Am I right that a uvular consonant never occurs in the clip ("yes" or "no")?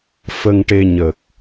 yes